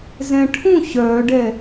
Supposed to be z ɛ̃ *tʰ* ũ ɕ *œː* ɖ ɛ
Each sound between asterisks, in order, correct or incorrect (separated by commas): incorrect, correct